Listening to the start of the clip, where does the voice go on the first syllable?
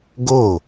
falling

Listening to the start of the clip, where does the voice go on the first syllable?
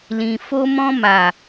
low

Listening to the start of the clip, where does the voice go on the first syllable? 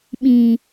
low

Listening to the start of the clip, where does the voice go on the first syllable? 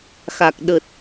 low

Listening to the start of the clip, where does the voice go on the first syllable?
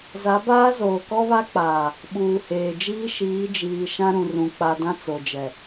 rising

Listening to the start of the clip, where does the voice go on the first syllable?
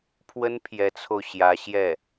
high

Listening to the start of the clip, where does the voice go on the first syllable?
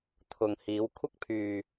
low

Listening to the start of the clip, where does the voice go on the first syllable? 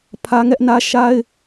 high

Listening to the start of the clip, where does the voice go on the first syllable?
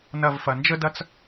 falling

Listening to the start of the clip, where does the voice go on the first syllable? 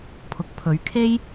rising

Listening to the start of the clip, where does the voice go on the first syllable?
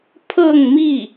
falling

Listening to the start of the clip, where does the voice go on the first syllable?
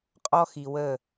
high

